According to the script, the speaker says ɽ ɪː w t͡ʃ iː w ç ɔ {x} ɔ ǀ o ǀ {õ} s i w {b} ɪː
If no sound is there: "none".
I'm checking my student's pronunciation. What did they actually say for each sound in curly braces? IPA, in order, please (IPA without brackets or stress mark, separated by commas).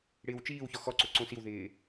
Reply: x, õ, ð